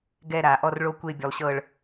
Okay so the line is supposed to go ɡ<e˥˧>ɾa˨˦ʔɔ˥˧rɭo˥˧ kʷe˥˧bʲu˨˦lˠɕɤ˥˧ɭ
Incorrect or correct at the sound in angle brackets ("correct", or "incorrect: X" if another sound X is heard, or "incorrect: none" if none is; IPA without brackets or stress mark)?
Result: incorrect: ɛ˥˧